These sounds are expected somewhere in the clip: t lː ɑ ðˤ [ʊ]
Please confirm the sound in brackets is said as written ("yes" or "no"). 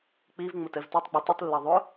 yes